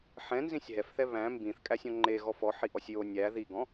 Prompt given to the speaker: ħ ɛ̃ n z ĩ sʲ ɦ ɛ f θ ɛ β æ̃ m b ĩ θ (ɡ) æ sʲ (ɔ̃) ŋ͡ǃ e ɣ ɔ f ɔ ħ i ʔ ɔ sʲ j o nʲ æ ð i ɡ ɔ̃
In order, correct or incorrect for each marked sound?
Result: incorrect: kʼ, correct

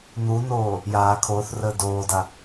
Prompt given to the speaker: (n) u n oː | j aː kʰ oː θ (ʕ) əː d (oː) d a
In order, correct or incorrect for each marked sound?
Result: correct, incorrect: r, correct

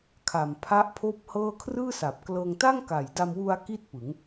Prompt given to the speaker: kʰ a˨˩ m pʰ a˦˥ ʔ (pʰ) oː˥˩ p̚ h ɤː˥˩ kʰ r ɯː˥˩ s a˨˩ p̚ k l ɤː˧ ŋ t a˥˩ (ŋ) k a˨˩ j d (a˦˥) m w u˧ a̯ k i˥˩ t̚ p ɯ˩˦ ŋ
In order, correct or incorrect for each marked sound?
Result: correct, correct, incorrect: a˧

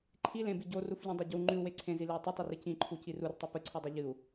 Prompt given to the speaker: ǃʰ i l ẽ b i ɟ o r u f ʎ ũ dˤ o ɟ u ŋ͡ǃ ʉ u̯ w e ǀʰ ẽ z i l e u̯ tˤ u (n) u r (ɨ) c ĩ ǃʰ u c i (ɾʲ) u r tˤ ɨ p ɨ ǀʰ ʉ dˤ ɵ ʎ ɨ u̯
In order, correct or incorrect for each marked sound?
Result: incorrect: tˤ, correct, incorrect: r

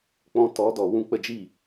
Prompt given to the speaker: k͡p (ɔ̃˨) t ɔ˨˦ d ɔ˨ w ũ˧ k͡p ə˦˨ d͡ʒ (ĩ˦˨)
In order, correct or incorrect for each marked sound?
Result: incorrect: ɔ̃˧, incorrect: i˦˨

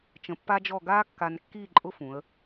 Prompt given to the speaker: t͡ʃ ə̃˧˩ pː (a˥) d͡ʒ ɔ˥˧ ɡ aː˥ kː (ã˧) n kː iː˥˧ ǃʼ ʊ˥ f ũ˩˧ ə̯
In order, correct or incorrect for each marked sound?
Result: correct, incorrect: a˧

